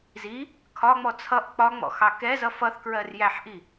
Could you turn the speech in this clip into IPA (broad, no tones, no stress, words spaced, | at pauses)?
zi | kʰɒŋ͡mɔ t͡sʰʌʔ k͡pɒŋ͡mɔ̰ xɑkɛzʌ fʌθkɹɜr jæħʔi